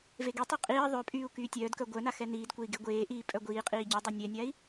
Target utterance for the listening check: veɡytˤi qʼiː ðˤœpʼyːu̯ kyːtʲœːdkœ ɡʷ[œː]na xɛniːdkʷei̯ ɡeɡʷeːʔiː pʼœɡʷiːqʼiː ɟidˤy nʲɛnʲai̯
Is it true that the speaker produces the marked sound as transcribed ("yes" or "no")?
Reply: no